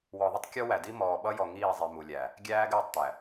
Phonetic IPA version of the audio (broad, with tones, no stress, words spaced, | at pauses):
wɔ˨ðˤɪ˦tˤ kʲɔ˦wæ˨di˦ mɔː˨ɓʌ˦jɔ˨ ŋiː˦˨zˤi˨ mu˨lʲæ˨ | ɡʲæː˦ɡɪː˦˨tˤt̪æ˨